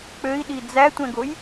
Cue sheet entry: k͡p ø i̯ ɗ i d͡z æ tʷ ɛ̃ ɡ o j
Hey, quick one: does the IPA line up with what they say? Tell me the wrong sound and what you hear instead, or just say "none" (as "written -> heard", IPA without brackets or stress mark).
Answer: none